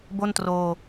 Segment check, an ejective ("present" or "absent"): absent